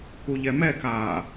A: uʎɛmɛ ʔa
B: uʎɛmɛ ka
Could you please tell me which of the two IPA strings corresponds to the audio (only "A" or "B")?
B